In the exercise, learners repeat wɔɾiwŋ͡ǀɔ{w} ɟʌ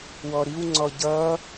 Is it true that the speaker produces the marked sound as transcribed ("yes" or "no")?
no